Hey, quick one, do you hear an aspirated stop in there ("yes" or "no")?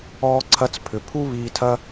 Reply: yes